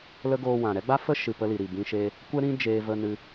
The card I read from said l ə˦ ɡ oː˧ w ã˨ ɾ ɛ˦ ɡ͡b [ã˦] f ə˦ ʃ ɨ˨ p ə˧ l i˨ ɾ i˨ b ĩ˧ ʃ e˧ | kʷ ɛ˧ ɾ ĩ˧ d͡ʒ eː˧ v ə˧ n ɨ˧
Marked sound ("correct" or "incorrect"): incorrect